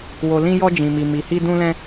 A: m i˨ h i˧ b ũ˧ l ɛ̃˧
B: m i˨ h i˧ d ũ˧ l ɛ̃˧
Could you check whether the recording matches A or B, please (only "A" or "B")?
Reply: B